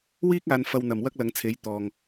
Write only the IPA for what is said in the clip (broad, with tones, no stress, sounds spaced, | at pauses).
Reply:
w iː˥ k̚ aː˨˧ n f ɐ˧ w n̪ ɐ˨˩ m w ɐ˥ k̚ l ɐ˨˧ ŋ t͡sʰ e˨˥ j t̪ ɔː˨ ŋ